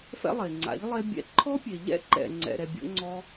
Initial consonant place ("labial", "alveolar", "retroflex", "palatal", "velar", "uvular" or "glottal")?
labial